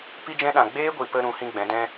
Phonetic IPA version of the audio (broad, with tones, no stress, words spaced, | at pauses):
pi˦d͡ʒɛ̃˦ɗã˨ ɡ͡beː˦ɡʷi˨pə˧ ɾũ˨˦hĩ˦ɡ͡bɛ̃˨˦ dɛ̃˦